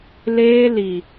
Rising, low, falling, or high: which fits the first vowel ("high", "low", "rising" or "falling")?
high